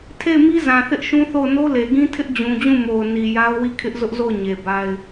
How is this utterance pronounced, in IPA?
tʰe˦˨ɪ̯mi˦ zã˨θɪ˦ʔʃũ˦θo˦˨ʊ̯ no˦le˨ɡĩ˦ tʰɪ˦ʔ d͡ʑũ˨d͡ʑũ˦˨mo˨ʊ̯ ni˨ja˦ʊ̯wi˦˨ kʰɪ˦ʔzʊ˦ʔzo˦˨ʊ̯ ɲe˨ba˦ɪ̯

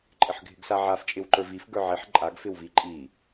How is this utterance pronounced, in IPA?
ǃʼɪħɡʱɪɡsaʕaf t͡ʃʼɪwǃə˞vif ɡə˞ʕiħ ǃʼaɡ fɪwviǃʼi

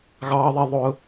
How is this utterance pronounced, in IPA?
ɣɑː˦ðˤɛ˦ ðˤʊː˦

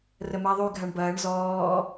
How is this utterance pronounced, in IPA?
rəmaðˤy ɡʱaɳbɐːɳ zɔː

